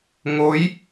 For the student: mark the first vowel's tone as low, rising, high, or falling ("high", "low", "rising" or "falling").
rising